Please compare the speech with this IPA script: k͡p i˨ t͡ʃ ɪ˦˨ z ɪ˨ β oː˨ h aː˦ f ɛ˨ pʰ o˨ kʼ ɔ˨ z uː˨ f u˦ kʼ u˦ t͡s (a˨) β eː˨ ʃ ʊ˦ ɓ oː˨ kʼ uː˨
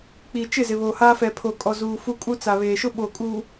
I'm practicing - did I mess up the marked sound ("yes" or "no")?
no